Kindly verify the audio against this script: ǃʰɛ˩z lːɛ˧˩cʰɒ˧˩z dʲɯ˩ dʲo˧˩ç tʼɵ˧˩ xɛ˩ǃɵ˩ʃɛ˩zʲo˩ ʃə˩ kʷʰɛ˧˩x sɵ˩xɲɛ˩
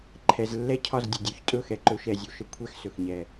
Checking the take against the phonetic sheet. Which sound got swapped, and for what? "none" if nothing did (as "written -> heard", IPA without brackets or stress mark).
ɯ˩ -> ə˩